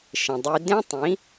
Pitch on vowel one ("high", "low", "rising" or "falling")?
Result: low